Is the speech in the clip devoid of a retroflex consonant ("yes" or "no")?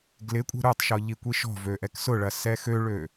no